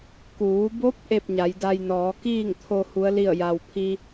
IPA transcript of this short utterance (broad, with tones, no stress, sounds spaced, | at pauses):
k uː˩˧ b o˧˥ p̚ ʔ e˥˨ p̚ ɲ a˩˧ j d a˧ j n ɔː˩˧ k iː˥˨ ŋ t̪ʰ o˧ h u˧˥ ə̯ l i˥˨ ə̯ j a˩ w pʰ i˧